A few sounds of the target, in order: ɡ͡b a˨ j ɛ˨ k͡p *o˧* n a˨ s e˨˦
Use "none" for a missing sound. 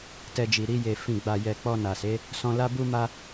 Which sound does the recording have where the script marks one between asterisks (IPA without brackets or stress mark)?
ɔ˧